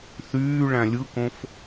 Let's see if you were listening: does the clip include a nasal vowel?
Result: yes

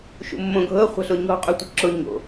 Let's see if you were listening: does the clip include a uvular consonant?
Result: yes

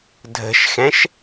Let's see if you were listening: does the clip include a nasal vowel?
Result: yes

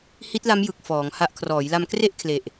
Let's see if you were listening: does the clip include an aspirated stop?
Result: yes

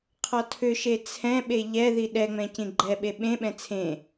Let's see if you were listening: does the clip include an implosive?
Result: yes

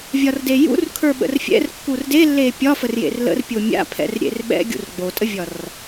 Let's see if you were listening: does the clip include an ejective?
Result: yes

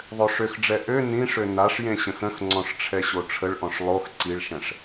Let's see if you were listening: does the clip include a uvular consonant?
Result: no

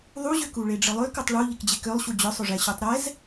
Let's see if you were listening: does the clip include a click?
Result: no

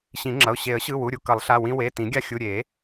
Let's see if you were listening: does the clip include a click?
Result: yes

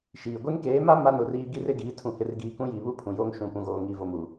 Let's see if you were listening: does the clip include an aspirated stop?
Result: yes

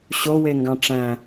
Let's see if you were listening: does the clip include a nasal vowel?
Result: yes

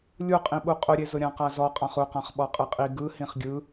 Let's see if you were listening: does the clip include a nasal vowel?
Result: yes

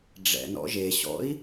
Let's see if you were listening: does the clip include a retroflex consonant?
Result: yes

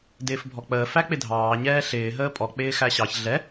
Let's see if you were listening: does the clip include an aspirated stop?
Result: no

